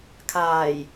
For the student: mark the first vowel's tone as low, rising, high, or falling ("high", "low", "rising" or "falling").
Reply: low